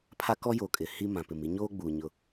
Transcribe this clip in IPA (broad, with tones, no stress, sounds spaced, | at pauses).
pʰ a˦ k ɔ˦ j o˨ kʼ ɪ˨ h i˦ m ã˨ p ɪ˨ m i˦ ɲ oː˦ ɡ͡b uː˨ ɲ ʊ˦